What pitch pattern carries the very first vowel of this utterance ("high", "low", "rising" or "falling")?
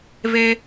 high